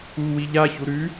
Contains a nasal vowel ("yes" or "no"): no